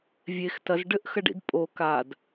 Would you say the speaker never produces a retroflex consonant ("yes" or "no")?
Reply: no